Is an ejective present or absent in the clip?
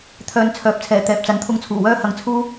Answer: absent